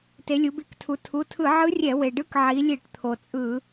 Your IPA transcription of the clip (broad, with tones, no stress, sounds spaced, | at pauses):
t e˩˧ lʲ u˩˧ b i˧˩˧ k tʰ u˩˧ tʰ u˩˧˩ tʰ ɯ˧˩˧ ʕ ɯ˧˥ rʲ ɛ˧˩˧ w e˩ ɖ ɯ˧˥ k ʕ i˩˧ lʲ e˧˩˧ ʈ t̪ʰ o˩ t͡sʼ ɯ˧˩˧